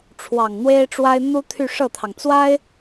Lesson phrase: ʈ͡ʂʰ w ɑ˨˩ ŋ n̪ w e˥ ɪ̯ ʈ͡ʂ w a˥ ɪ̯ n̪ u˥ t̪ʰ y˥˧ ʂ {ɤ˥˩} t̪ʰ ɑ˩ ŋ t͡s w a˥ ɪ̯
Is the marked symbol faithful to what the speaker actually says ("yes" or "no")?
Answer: yes